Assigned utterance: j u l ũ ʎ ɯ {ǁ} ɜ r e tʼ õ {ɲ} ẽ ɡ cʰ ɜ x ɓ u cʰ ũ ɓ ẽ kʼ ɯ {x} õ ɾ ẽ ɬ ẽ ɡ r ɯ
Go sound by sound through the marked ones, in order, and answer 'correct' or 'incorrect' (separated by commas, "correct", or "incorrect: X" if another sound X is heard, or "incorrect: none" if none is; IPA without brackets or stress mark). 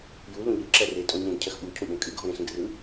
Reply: correct, correct, incorrect: ɡʱ